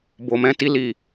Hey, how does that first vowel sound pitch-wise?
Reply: low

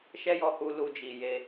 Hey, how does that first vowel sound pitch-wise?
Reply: high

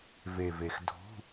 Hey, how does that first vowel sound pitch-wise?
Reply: low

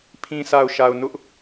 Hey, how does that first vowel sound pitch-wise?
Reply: low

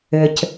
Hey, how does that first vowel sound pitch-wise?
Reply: low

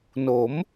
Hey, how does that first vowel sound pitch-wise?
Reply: rising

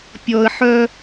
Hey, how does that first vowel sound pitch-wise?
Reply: low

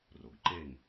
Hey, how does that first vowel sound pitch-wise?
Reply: low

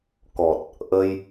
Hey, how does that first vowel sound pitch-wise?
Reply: low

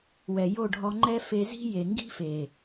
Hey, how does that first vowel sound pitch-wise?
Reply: low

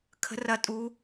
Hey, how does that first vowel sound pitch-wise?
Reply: rising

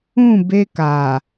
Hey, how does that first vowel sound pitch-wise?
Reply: falling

